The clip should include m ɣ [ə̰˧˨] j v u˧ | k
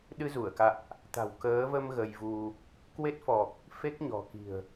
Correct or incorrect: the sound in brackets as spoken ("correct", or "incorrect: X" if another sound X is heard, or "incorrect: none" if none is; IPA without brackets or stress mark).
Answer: incorrect: ə˧